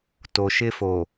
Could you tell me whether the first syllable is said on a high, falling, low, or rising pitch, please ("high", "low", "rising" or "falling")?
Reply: low